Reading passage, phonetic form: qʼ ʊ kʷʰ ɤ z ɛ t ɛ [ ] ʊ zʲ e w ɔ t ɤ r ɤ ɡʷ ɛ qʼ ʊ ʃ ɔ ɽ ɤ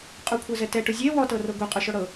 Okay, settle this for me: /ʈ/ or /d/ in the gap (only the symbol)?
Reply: ʈ